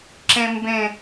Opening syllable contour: high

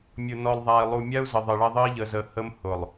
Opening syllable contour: low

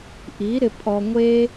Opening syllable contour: rising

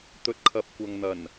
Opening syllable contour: low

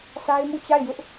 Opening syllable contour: high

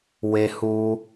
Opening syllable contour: high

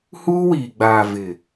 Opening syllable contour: high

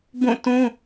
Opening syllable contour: falling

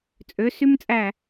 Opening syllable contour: rising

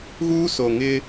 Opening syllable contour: high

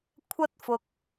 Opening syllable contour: high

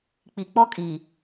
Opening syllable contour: low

